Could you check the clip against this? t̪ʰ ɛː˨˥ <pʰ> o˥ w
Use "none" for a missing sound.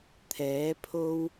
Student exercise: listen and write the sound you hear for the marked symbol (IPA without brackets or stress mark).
pʰ